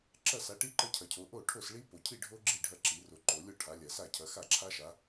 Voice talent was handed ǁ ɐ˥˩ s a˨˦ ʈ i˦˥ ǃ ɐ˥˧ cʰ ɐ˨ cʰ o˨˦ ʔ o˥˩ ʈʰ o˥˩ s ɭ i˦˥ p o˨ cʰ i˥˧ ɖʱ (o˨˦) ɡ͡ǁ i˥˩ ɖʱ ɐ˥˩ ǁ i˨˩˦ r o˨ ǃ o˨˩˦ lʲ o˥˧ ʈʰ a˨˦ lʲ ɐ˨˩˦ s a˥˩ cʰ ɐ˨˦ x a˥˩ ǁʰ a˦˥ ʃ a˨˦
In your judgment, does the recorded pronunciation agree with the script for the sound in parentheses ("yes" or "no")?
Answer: no